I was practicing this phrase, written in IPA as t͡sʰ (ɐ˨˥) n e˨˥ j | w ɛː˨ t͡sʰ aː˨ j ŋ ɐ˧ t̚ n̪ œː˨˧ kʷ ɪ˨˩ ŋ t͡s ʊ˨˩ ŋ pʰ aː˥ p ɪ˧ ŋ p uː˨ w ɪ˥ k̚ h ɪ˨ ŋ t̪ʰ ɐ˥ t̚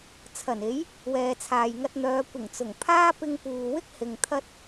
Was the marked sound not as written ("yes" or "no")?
yes